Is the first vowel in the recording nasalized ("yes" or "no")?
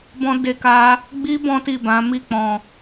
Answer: yes